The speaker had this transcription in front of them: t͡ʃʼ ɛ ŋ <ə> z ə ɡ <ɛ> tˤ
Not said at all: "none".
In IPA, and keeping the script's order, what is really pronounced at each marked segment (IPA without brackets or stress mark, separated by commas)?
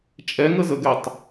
ə, ɛ